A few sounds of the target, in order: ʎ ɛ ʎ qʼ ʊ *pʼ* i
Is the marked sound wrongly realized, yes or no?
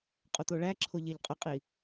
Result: yes